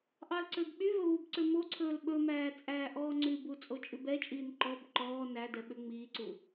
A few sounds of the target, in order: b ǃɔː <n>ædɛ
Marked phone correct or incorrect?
correct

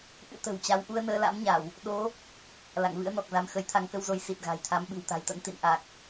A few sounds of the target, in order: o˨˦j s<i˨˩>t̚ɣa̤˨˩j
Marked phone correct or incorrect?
correct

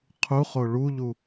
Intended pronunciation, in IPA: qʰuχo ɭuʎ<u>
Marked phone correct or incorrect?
correct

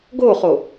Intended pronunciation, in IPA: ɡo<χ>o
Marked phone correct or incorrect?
correct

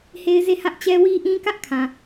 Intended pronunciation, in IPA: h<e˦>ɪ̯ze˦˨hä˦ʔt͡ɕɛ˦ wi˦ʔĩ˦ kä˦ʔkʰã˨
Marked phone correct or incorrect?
correct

